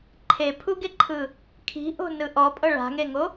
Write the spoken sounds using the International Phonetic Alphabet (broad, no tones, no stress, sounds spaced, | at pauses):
ǃʰ e pʰ u ɡ e ǃʰ ɯ | kʰ i̤ ʔ o̤ n ɯ ʔ ɔ pʼ ɤ ɭ a̤ ŋ e ŋ o